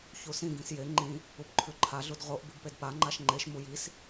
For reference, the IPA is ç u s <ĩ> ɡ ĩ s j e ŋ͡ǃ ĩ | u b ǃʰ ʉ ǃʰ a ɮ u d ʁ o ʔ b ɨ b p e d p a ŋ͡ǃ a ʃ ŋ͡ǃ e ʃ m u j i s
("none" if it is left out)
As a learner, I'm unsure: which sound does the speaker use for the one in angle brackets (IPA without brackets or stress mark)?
ĩ